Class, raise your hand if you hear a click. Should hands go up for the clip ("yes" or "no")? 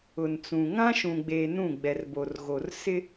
no